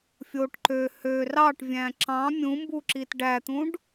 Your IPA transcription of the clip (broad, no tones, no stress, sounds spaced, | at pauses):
fʲ o ʈ ǃ ø h ø r ɑ ʈ vʲ æ̃ ǁ ɑ̃ mʲ ũ m b u ǁ i t ɖ æ t̪ ũ ɖ